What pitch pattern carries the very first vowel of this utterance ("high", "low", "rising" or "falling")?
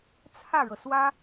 falling